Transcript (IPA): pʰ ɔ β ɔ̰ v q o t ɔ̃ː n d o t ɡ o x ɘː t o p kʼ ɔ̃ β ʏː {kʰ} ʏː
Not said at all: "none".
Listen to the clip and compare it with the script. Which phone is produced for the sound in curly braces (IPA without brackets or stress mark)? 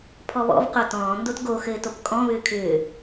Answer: kʰ